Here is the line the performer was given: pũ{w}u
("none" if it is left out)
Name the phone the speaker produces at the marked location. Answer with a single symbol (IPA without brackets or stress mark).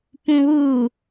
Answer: w